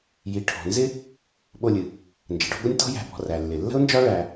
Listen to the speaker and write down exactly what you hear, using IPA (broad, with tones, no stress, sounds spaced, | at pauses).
j i˩ ʈʰ ɔ̤˩ n z ɪ˦ | ɓ o˨ lʲ ɨ˩ | n d͡ʒ ə˩ ɖ ɔ̤˦ ɡʷ ɪ˥ nʲ t ɔ̤˦ j æ̤˨ b ɔ̤˨ r æ˩ lː ɪ˩ lː ə̤˥ ʊ̯ n d͡ʒ ɒ˥ ɭ æ˨